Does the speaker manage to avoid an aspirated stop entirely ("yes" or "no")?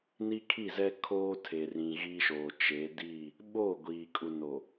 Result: no